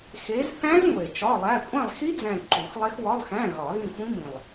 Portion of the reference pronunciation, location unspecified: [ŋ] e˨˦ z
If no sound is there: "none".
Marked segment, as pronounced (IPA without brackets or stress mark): x